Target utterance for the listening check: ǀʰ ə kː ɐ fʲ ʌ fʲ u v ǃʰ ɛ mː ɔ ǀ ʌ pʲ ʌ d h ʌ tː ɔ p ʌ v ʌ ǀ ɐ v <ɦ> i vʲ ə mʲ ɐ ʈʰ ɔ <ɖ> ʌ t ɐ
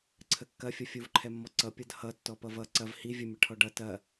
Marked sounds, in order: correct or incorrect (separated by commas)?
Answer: incorrect, correct